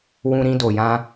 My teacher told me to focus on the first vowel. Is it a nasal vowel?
yes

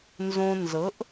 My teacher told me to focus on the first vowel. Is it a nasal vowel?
yes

